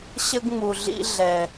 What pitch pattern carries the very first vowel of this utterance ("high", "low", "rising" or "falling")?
high